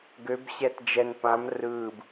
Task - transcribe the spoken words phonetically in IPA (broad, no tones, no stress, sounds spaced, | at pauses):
ɡ ø b ɕ ɛ t d͡ʒ ɛ n p ã m r ɯː b